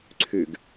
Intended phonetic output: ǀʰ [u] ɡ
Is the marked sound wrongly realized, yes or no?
yes